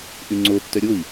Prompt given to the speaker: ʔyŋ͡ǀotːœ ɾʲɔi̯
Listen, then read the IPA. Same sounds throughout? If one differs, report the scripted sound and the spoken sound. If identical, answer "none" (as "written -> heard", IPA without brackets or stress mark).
ɔ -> o